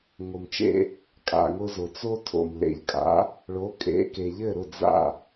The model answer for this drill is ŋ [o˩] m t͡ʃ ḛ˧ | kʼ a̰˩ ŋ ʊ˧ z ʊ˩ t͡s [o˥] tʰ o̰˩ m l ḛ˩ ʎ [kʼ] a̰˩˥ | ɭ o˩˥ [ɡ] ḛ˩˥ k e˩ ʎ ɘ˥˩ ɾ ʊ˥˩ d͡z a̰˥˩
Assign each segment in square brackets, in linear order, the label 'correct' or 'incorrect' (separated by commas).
correct, correct, correct, incorrect